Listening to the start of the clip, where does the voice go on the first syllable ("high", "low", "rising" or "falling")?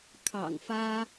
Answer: low